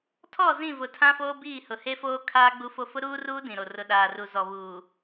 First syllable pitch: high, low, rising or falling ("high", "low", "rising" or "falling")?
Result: falling